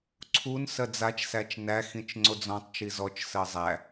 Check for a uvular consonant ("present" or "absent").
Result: absent